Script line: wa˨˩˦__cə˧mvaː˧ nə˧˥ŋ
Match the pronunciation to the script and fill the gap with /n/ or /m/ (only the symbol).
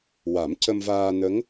m